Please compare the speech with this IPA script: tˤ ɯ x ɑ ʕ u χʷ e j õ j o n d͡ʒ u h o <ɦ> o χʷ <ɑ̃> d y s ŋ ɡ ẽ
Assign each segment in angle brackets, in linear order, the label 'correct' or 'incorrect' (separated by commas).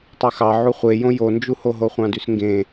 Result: correct, correct